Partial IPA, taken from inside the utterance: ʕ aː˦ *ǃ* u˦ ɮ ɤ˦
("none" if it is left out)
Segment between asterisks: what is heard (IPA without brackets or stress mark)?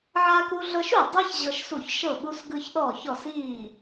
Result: k